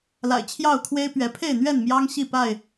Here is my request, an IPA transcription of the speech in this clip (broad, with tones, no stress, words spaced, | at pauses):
la̰˨˩ɪ̯t͡ɕʰjɑ˥˨ʊ̯kʰwe˦ɪ̯ pɥɛ˨˦ pʰe˥˨ɪ̯n̪ɥɛ˥˨n mjɑ˦ŋ ɕi˥˨pa˥˨ɪ̯